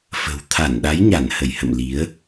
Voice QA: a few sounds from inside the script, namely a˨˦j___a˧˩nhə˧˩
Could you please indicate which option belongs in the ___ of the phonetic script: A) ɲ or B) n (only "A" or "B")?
A